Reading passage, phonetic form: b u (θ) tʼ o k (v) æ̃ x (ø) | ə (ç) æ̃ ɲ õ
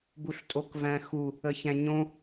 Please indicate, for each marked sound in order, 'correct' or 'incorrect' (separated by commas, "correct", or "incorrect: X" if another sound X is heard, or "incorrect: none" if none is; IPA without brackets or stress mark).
incorrect: ɬ, correct, incorrect: u, correct